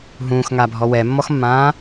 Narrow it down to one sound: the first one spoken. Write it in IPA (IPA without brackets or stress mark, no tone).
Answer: ɦ